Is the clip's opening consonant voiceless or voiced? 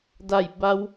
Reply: voiced